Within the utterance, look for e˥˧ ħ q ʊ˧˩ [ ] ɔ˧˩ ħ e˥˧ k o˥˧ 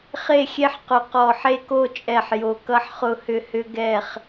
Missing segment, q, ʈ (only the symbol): q